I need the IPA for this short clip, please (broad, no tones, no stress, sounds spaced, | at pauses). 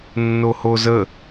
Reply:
nː o h o z ə